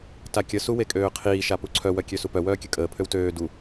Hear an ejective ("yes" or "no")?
yes